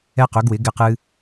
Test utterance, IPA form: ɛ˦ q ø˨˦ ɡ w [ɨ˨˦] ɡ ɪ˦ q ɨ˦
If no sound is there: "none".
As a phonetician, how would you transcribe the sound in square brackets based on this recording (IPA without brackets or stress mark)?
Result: ɪ˨˦